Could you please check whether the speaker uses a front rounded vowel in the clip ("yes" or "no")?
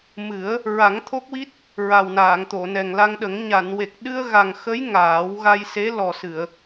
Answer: no